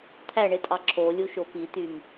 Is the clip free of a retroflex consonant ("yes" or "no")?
no